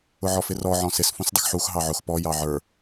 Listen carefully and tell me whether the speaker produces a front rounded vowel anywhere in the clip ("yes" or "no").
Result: no